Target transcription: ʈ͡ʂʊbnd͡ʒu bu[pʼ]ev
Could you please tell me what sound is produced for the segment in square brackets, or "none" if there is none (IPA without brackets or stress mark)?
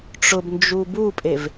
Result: pʼ